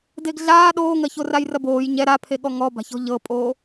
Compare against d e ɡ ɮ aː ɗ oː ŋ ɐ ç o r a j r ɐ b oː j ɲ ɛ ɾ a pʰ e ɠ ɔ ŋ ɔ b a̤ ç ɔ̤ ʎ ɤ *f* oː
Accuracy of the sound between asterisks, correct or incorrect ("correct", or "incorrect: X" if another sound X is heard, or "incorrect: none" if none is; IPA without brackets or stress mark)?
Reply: incorrect: pʼ